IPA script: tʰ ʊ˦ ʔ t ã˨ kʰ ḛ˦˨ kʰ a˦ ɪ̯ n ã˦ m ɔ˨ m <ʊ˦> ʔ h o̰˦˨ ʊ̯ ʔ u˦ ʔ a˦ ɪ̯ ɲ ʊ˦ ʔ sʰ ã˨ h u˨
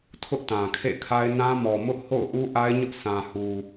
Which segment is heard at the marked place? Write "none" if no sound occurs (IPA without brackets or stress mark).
ʊ˦